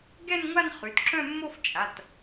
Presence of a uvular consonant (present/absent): present